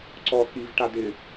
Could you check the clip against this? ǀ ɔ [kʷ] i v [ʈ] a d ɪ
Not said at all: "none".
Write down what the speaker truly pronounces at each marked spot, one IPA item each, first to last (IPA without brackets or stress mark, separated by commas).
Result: k, ʈ